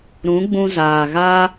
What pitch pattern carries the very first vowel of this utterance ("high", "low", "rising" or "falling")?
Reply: rising